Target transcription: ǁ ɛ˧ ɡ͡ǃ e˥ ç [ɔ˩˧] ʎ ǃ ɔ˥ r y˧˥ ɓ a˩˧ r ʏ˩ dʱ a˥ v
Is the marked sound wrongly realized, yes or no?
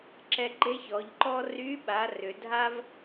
no